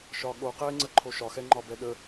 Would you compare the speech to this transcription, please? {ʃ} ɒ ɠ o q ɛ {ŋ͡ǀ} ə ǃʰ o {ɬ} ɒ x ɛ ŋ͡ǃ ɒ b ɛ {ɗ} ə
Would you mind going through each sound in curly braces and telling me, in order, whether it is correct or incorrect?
correct, correct, incorrect: ʃ, correct

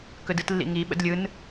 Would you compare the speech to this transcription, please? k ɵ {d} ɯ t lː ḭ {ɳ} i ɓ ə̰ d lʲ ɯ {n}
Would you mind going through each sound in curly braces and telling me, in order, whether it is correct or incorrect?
correct, incorrect: ŋ, correct

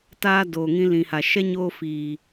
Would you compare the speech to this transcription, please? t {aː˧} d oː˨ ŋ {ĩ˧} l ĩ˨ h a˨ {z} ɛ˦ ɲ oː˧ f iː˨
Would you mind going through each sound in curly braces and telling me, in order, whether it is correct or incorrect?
correct, correct, incorrect: ʃ

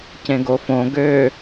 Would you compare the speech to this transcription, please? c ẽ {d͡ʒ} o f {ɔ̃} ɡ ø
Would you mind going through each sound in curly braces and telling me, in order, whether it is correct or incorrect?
incorrect: ɡ, incorrect: õ

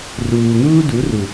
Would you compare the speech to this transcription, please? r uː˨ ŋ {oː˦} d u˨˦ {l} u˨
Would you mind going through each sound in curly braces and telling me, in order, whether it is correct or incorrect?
incorrect: uː˦, incorrect: r

